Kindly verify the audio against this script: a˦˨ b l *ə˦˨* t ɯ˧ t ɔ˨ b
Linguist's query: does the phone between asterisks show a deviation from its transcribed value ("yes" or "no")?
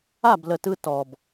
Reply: yes